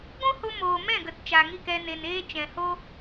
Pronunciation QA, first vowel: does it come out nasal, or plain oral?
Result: nasal